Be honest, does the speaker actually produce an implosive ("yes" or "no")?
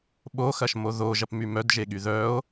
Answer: yes